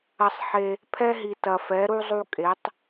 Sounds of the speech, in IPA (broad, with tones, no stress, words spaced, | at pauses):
ɐ˧sˤħe˧ | pʰɛ˥ɦi˧ tɐ˧fɛ˧˥ɾu˥ zˤu˥kʼe˧˥tˤ